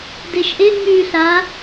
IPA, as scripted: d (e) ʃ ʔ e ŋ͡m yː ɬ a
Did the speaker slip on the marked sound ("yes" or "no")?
no